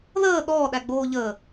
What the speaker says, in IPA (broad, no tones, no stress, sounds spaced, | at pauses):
ð əː ɗ ɔː ɗ æ ɡ͡b oː ʎ ə